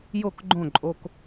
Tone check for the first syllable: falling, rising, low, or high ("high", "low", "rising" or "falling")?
falling